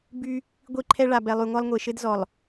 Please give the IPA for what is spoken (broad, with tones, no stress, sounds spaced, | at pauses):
b y˦ | ɡʷ i˦ ǃʰ ɛ˦ ɭ a˨ b ɛ˨ lˠ y˨ ŋʷ a˦ lˠ ŋʷ e˨ ʃ ɘ˦ d z ɔ˨ lˠ